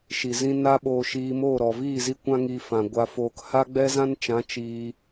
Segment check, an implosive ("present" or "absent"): present